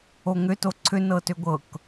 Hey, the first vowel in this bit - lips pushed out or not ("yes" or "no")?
yes